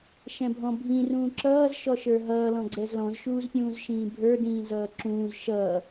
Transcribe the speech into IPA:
ʃ ɛ̃ bʱ ɔ̃ bʱ ĩ r ũː ǁ ʌː z ʃ ɔ ʃ ə˞ ɦ ʌː l ɔ̃ ɡ͡ǀ ɛ z l ɔ̃ z ʃ uː z pʲ ũː z ʃ ĩː bʱ ə˞ d ĩː z ʌː ǁ ũː z ʃ ʌː

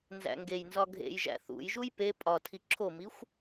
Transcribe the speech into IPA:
n z æ̰ ŋ ɡ e j n z ɒ ɡʱ ḛ j ʒ æ̰ θ ṵ j ʒ u j p e pʼ ɒ tʰ i ǁʰ o m i xʷ

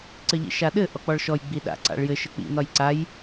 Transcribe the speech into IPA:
ǀ ɘ ʎ ḭ ʃ a ɗ ɘ ʔ ɔ k͡p ɔ ɭ ʃ ɔ j ɡ͡b i ɗ a̰ ǀ a̰ ɭ j ɘ ʃ ɘ k͡p ḭ n ɒ j ǀ a j

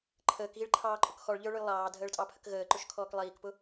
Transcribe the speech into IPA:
ǃʰ əː k ɣ i ɭ ǃʰ ɑː ǃʼ ʊ k x ɔ ɭ ʎ ə˞ ɭ ʊ j lˠ ɑː dʱ əː ɭ tʼ ɑ pʰ ə k ɣ əː ǃ ʊ ʃ kʰ ɔː k lˠ iː k p ʊ

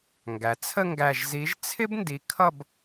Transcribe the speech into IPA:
ŋ ɡ æ˩ t͡sʰ ə˥˧ ŋ ɡ æ˧˩ ʒ z i˨˥ ʒ t͡sʰ ɪ˥ b n d i˨˥ kʰ ʌ˥˧ b

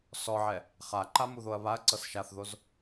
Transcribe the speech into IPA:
s ɔ ʕ ɛ | χ a ǃ a m u ð o ɐ̯ β a ɐ̯ ǀ ɤ s ʃ a θ ð o z

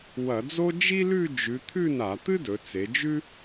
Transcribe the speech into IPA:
w ɐ˧˩˧ d͡z o˥ d͡ʒ i˥ l ʉ˥˧ d͡ʒ ʉ˩˧ t̪ʰ ʉ˥˧ n a˧˩˧ t̪ ɨ˥ d ɵ˩˧ t͡s e˩˧ d͡ʒ ʉ˥

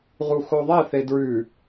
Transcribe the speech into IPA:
ʁ u x o ðˤ ɛ θ e d ɹ ʉ

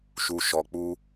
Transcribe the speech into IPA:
ʃ u˧ ʃ ɔ˧ k͡p u˦

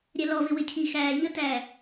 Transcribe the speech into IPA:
ɾʲ ɛ l ɔ v ɪ w ɪ cʰ i x æː ʎ ə t æ

